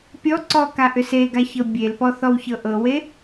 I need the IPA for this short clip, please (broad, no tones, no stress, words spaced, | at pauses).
pʲɔǀɔ kaʔʏseɡa çɤbʲelpɔ θɔwçɤʔɤwe